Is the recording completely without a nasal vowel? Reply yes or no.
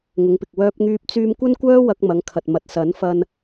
yes